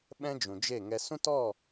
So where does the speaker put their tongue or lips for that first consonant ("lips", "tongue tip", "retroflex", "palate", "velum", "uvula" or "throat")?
lips